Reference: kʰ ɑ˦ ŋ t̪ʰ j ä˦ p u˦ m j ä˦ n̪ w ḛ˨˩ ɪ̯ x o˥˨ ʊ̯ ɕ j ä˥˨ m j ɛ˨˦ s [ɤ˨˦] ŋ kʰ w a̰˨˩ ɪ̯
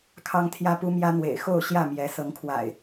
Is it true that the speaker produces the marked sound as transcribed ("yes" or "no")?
yes